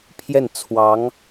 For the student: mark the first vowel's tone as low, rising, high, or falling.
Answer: falling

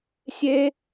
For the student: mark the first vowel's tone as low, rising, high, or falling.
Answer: high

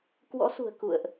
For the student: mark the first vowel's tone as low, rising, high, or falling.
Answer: rising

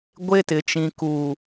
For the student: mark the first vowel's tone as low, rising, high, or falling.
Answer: high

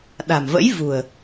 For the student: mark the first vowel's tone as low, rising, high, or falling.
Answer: low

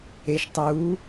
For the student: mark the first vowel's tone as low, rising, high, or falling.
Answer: low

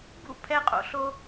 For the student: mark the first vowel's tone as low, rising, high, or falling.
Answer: falling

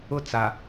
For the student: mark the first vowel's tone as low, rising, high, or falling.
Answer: high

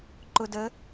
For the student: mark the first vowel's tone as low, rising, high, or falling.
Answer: low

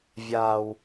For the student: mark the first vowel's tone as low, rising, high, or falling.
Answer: low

